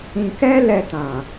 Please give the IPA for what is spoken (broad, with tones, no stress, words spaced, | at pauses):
ĩ˧kɛ˦lɛ˧ tã˨